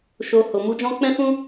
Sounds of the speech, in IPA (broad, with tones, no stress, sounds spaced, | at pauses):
ʃ o˨ h o˨ m u˨˦ d͡ʒ ɔ̃˦ k͡p ɛ̃˦ f ũ˦